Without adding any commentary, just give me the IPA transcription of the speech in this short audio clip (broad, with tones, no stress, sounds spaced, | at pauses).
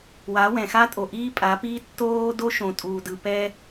w a˨˦ w ɛ̃˨ x a˦ tʼ o˨ ʔ iː˦ pʼ a˨˦ p iː˦ tː oː˦ d o˦ ʃ õ˨ tʼ uː˨ d ɯ˨ p ɛ˦